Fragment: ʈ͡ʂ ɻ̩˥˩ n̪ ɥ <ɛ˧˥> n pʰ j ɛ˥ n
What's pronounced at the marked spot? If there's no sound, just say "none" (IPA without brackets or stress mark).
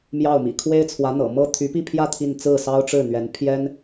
ɛ˧˥